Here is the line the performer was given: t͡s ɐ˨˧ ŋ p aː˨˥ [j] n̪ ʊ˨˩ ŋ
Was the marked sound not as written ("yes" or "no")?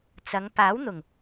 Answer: yes